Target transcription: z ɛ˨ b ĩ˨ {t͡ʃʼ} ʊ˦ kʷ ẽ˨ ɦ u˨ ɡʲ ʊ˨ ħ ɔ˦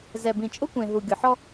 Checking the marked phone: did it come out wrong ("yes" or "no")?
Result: no